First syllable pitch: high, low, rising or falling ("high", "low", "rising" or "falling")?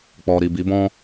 low